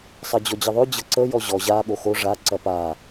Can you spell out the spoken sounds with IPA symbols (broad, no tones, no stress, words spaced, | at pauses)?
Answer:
sˤɐd͡ʑɔd͡ʑəðˤø d͡ʑɤǀə jɔʑɔ ʑa ɠoxo ʐa ǀɐpa